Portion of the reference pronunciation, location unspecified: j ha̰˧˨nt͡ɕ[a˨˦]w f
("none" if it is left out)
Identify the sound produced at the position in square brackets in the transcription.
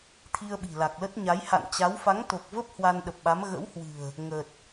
a˨˦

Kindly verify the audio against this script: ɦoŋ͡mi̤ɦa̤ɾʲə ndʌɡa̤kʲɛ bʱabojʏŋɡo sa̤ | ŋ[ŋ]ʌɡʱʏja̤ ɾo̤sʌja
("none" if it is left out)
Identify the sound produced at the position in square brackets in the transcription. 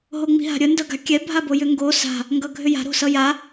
ɡ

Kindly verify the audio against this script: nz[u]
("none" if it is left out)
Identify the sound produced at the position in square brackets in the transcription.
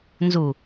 u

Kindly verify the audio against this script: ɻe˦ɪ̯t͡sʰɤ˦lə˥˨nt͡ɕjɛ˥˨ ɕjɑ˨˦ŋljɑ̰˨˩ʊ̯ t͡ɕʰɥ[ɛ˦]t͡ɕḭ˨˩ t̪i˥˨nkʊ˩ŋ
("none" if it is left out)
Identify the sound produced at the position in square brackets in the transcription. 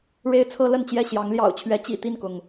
ɛ˨˦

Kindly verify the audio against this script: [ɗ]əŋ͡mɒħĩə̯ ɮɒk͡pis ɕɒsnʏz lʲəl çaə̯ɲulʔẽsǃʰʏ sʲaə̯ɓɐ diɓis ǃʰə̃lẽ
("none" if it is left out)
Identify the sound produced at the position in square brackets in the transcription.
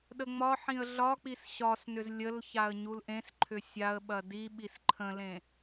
ɗ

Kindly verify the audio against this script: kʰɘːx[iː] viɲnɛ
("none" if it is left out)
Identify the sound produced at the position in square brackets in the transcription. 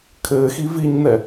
i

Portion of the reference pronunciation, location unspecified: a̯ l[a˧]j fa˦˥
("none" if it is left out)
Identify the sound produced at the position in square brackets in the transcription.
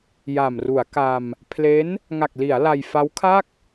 a˧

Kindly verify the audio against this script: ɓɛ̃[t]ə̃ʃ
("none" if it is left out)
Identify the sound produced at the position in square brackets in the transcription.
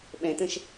t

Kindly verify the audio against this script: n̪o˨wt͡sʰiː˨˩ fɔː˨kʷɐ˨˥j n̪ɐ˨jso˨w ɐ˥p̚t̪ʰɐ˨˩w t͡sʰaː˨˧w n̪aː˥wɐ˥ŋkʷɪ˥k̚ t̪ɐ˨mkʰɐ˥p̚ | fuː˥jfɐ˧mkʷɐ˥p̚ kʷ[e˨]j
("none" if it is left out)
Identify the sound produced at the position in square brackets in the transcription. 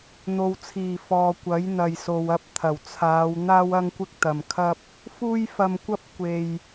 e˨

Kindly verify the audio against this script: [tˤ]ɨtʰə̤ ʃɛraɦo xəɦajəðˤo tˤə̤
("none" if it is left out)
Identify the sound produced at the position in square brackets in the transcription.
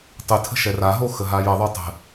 tˤ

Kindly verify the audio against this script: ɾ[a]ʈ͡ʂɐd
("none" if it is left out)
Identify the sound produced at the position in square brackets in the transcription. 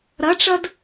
ɐ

